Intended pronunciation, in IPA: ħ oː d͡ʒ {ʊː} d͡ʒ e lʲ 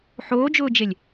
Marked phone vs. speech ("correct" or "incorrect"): correct